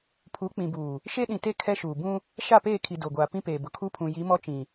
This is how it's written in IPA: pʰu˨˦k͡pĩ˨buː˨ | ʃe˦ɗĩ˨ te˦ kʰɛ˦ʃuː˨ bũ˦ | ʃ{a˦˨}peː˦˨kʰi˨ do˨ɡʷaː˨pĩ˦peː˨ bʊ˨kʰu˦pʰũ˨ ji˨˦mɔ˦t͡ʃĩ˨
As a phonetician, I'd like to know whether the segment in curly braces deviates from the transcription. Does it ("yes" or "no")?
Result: no